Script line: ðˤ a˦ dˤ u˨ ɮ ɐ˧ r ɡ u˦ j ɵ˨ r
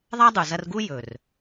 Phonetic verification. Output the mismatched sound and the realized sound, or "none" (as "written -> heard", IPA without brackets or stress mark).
ɮ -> z